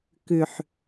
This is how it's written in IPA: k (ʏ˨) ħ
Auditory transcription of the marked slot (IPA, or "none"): ʏ˨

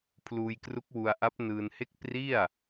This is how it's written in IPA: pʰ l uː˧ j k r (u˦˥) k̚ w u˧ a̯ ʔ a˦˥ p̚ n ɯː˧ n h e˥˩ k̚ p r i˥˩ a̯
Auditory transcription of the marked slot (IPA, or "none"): u˦˥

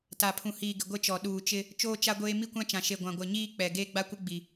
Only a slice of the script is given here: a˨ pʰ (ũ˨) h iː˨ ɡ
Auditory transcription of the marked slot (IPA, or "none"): ũ˨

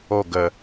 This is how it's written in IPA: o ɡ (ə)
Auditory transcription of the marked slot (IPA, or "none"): ə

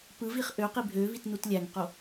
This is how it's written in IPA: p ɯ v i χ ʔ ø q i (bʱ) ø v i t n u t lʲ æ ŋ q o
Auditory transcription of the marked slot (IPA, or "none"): bʱ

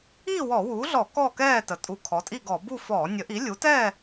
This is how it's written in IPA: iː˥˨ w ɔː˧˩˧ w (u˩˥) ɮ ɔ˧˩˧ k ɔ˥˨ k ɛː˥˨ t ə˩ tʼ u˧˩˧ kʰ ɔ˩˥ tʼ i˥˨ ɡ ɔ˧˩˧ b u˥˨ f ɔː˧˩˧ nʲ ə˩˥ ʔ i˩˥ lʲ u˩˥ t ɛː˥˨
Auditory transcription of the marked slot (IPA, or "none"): uː˩˥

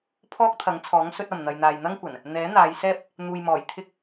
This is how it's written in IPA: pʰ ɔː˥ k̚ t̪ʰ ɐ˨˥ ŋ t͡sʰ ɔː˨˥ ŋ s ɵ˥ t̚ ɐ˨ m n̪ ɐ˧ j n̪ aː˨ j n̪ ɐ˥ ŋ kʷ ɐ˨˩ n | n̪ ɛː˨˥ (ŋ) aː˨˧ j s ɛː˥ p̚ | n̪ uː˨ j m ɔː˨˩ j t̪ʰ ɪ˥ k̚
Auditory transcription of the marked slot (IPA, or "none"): n̪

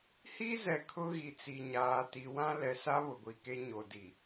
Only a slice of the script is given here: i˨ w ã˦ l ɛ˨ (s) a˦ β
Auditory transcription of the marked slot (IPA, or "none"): s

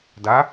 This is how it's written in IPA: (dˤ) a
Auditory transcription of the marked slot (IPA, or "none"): d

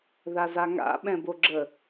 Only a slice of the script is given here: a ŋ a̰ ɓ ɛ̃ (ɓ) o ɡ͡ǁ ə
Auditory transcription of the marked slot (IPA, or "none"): b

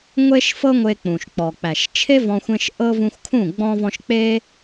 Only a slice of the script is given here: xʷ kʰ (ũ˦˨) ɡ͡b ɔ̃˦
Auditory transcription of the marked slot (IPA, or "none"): ũ˦˨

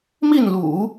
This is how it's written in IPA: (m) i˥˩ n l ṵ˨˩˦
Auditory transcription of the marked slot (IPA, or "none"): m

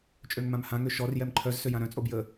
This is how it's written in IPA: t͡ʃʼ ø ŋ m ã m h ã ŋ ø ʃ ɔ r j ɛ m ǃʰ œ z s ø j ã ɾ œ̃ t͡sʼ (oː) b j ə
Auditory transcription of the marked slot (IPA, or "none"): o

